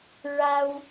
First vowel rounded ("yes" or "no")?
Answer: no